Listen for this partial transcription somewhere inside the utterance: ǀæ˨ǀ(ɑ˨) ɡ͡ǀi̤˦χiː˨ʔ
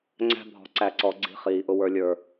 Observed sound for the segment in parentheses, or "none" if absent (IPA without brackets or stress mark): ɔ˨